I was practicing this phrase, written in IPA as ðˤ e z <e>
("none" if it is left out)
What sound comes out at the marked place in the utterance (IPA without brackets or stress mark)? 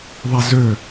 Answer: ø